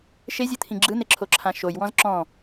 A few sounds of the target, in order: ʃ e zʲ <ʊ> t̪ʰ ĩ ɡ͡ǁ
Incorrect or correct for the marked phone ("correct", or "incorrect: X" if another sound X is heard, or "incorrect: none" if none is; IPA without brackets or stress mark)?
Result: incorrect: ɯ